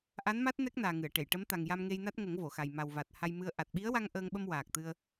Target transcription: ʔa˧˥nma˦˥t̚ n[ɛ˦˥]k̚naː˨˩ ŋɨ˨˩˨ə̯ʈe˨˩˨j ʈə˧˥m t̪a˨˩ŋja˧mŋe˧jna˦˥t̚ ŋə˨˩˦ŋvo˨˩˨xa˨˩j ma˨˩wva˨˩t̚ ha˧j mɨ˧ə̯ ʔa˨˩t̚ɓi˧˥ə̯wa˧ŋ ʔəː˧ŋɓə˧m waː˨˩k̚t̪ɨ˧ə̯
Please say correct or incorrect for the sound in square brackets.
correct